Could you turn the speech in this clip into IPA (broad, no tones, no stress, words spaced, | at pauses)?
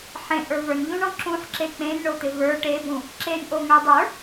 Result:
ħẽʔə˞ və˞nʎũɳɔ̃ ǁũħǁe k͡pẽnɳot̪ɪ və˞ ʈebũ | ǁenʔoŋə˞ dˤə˞